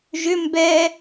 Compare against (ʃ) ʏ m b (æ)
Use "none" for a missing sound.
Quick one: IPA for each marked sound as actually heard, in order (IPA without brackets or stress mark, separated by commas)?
ʒ, ɛ